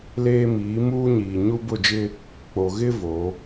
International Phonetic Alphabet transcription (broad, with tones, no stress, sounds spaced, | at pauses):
l eː˦ m iː˨˦ m uː˦ ɲ iː˨ ɲ u˦ b ʊ˦˨ d͡ʒ ɪ˦ | k͡p o˨ ɣ ɪ˦ v o˨˦